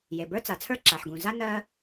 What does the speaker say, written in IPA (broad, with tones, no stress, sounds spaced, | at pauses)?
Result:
j e˩ b ə˞˥ t͡s a˩ t͡sʰ ə˞˥ ǁ a˩ ħ ɡ ũ˩ z a˥ n ɜ˥